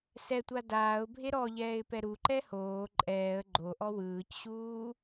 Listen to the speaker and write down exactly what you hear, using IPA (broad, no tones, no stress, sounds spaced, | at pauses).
s ɛ tʷ a d aː ʊ̯ bʱ e ɾ ɔ ʎ ɛː ɪ̯ p ɛ ɾ u ǃ ɛ h oː ǃʼ ɛː ə̯ ɡ͡ǃ o ʔ ɔ w ɯː c ɕ uː